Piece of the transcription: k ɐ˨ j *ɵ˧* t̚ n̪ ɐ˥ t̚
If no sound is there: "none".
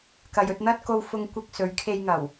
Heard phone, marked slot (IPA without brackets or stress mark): ɵ˧